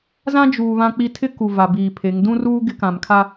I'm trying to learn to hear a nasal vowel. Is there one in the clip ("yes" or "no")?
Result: yes